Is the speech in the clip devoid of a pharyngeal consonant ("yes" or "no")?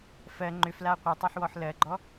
no